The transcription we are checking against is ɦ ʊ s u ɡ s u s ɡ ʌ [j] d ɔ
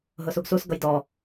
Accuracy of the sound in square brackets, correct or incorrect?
correct